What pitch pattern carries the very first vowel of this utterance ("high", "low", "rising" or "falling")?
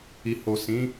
low